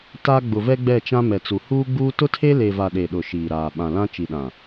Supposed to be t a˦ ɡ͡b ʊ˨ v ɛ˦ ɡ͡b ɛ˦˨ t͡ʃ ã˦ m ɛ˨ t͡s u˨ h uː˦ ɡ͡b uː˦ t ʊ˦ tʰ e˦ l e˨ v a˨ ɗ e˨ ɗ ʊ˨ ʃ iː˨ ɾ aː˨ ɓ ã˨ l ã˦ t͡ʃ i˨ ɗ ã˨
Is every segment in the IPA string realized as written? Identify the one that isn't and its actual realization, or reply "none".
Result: none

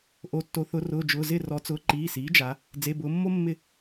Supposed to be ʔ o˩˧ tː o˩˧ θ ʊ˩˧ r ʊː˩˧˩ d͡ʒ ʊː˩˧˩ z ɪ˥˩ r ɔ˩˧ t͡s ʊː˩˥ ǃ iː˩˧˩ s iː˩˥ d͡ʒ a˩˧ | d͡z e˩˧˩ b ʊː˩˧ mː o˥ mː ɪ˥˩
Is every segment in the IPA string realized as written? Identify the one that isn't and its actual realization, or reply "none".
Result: none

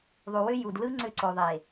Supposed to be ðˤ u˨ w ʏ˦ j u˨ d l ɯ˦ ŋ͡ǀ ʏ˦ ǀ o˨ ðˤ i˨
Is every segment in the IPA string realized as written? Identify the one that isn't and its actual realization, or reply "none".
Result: i˨ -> e˨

